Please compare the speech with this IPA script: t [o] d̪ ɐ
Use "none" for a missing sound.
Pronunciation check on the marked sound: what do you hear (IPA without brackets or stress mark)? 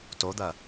o